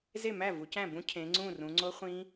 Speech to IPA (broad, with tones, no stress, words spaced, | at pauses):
ze˥˩mæ˥˩ vu˨˦cæ̃˥˩bũ˦˥ cʰẽ˨˦ŋ͡ǀũ˥˩rũ˨˦ ŋ͡ǀo˦˥ χʷĩ˦˥